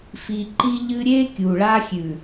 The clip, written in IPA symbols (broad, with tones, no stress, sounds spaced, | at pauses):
f i˦ ǃ i˦ ʎ ɨ˦ ɾʲ e˦ kʲ u˨ ɭ a˦ xʲ ʉ˨